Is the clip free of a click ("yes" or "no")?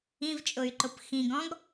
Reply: no